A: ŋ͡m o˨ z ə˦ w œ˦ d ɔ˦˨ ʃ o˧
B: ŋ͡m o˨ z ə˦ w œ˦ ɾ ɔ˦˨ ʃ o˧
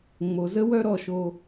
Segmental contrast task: B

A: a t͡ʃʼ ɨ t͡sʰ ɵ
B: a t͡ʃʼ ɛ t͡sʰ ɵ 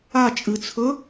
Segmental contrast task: A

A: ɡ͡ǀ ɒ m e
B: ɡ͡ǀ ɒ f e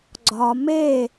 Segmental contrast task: A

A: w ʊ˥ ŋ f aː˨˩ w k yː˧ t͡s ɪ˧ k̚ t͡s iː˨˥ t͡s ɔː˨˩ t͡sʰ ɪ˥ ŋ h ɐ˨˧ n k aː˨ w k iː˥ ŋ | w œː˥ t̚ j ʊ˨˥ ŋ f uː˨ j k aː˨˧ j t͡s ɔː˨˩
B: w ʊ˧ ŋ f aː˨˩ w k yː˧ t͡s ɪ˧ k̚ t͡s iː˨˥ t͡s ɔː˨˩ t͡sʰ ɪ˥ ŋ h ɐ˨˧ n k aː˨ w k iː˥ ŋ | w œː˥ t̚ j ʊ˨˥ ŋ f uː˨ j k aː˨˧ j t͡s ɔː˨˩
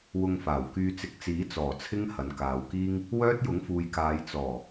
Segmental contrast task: B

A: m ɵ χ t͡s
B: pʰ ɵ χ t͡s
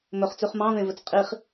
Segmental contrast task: A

